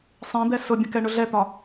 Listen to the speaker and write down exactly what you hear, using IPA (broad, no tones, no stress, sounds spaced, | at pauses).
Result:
sˤ ẽ d̪ ɛ s ʊ bʲ ə̃ k ɛ ɳ ʊ ɮ ɛ t̪ ɒ